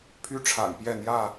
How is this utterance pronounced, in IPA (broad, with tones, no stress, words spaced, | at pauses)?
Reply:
pʰy˦ʈ͡ʂʰa̰˨˩n pjɛ˥˨n̪jä˥˨